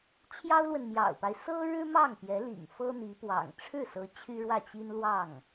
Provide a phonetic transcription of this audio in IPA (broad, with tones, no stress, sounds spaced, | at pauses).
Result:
t͡ɕʰ j ɑ˥ ʊ̯ l w ə˨ n m j ɑ̰˨˩ ʊ̯ p a˦ ɪ̯ s ɤ˥ ɻ ɻ̩˥ m ɑ˥˩ ŋ p j ɛ˧˥ l ḭ˨˩ ŋ f ɤ˥ n̪ i˧˥ p w ɑ̰˨˩ ŋ ʈ͡ʂʰ ɻ̩˥˩ s ɤ˧˥ t͡ɕʰ y˥ ɻ w ä˥˩ t͡ɕ i˥ n l w ɑ˥˩ ŋ